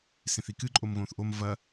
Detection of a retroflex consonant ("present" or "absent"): absent